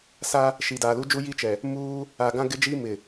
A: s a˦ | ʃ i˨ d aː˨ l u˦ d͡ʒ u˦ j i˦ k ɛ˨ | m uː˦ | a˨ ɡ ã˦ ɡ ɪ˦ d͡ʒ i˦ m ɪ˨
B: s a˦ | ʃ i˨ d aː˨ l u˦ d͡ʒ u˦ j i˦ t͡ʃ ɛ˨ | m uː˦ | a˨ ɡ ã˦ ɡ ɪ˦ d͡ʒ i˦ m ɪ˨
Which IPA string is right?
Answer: B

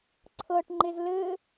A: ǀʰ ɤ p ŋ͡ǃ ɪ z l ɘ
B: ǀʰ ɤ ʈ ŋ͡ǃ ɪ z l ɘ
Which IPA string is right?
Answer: B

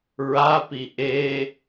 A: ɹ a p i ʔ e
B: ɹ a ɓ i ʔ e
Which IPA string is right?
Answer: A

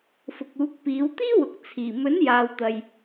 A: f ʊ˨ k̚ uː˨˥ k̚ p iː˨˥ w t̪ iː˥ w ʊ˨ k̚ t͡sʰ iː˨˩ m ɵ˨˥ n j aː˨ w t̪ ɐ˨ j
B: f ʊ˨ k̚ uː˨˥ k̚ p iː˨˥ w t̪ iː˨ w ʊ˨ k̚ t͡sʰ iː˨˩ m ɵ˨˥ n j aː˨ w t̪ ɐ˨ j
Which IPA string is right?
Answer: A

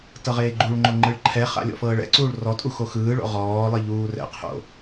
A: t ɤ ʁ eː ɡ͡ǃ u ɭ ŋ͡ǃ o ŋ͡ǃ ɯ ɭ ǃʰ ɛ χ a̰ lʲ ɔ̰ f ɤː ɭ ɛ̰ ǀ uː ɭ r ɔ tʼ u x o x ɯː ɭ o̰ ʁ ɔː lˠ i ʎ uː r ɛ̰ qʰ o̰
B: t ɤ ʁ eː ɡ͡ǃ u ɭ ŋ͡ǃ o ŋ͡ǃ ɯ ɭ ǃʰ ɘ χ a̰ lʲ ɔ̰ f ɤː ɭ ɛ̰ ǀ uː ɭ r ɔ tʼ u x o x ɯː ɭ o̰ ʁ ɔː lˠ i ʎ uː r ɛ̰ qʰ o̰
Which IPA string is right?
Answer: A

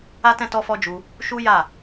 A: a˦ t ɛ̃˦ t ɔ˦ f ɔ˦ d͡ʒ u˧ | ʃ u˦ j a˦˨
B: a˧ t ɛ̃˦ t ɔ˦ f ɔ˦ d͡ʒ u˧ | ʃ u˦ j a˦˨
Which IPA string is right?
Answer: A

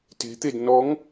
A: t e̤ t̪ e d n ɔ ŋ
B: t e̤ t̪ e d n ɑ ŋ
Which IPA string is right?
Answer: A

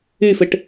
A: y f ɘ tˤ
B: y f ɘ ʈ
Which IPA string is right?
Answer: B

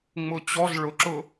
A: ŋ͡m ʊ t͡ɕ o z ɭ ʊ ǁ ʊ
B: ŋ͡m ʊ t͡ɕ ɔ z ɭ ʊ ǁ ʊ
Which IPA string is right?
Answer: B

